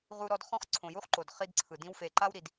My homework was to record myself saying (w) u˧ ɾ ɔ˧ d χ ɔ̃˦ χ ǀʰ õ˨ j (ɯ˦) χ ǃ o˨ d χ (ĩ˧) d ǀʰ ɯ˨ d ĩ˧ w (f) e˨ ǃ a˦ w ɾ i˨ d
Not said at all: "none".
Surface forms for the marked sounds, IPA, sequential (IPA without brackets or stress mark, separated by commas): ʁ, u˦, i˧, f